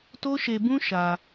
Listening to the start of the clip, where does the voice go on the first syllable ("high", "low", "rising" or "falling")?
high